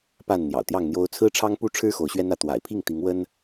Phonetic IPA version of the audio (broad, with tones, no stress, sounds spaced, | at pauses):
p a˥˨ n n̪ j ɑ̰˨˩ ʊ̯ t̪ j ɑ˥˨ ŋ n̪ j o˦ ʊ̯ t͡sʰ ɹ̩˦ ʈ͡ʂʰ ɑ˦ ŋ p u˦ ʈ͡ʂʰ ɻ̩˦ x o˨˦ ʊ̯ ɕ ɥ ɛ˦ n ä˥˨ t̪ w a̰˨˩ ɪ̯ pʰ i˥˨ ŋ t̪ i˨˦ ŋ w ə˦ n